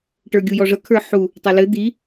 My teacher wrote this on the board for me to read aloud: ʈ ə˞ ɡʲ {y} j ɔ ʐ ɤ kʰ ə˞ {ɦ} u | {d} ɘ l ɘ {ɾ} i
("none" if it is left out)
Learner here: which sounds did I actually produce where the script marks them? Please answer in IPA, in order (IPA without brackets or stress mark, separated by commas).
u, ħ, tˤ, d̪